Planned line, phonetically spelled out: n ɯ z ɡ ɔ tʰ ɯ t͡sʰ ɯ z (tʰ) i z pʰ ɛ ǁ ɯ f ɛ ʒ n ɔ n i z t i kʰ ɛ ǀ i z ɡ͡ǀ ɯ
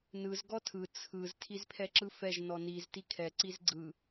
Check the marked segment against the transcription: correct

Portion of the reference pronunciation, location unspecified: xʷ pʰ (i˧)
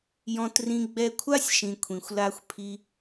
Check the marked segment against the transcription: correct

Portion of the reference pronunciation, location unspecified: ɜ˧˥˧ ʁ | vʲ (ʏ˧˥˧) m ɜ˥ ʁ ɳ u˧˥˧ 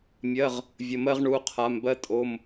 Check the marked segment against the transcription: incorrect: ə˧˥˧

